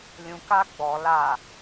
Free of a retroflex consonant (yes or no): yes